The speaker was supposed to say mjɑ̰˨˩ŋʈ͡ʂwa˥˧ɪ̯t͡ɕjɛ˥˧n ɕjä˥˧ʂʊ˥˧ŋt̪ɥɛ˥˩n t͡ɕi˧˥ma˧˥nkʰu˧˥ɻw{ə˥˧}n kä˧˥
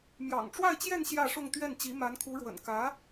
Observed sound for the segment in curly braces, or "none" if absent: ə̰˨˩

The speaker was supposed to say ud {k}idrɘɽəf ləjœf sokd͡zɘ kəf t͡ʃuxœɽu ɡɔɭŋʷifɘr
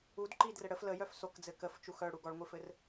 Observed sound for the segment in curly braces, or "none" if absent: ǃ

